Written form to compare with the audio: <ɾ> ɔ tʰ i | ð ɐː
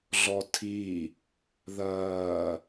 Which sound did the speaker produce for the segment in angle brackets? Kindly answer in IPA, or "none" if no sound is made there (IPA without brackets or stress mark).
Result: ɮ